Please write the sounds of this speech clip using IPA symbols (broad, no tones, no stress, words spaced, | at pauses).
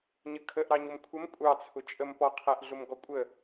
ɲəkʰəʔɾɑɲʊm kʷʰəm kʷʼɑt͡sʰʊ t͡ʃʼəmpɔqʰæʔɮʊm ɡɔkʷʼə